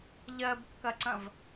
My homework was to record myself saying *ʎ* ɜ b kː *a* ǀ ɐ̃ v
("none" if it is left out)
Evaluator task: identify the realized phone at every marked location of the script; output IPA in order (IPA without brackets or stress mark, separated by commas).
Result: ʎ, ɐ